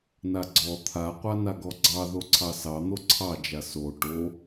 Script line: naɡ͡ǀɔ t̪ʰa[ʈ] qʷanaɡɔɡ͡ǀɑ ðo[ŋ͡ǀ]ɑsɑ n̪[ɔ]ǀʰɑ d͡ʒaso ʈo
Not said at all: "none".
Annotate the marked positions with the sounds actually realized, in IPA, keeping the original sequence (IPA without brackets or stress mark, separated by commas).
none, ǀʰ, o